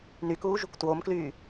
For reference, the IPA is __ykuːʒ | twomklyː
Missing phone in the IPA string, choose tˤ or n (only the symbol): n